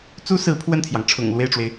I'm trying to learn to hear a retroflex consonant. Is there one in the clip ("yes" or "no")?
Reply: yes